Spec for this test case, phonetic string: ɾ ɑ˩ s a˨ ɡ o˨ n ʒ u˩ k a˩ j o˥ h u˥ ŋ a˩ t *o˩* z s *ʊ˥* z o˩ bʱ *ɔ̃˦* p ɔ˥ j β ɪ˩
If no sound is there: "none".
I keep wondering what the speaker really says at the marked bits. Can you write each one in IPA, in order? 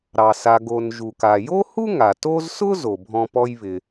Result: o˦, ʊ˥, ɔ̃˦

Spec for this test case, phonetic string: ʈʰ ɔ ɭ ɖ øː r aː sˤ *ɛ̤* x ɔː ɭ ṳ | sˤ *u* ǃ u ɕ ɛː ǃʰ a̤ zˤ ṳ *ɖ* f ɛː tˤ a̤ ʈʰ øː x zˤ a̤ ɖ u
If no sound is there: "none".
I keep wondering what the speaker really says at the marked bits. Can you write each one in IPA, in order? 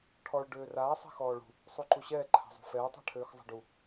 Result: ɛ̤, u, none

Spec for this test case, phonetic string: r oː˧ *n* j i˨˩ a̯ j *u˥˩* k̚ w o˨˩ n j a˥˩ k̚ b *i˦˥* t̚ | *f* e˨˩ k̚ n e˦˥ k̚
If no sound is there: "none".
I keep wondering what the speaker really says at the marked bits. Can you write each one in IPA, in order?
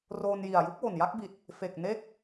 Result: n, u˦˥, i˨˩, f

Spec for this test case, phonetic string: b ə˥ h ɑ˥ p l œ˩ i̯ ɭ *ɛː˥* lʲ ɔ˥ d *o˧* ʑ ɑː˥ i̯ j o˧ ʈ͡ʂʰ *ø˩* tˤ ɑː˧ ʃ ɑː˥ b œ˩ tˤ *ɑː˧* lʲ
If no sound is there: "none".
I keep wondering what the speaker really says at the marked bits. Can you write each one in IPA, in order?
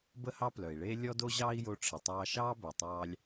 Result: eː˥, o˥, ə˩, ɑː˧

